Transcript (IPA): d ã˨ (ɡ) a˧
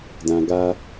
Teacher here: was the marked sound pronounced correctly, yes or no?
yes